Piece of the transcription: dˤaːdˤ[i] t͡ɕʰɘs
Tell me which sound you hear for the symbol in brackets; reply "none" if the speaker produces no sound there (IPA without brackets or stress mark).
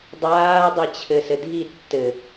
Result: ɨ